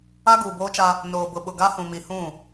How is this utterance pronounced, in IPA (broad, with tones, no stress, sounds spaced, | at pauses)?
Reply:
a˦ ɡ uː˨ b oː˦ t͡ʃ a˦ | n oː˨ b ʊ˨ ɓ ʊ˨ ɡ a˦ h ũ˨ m i˨ h ũ˦˨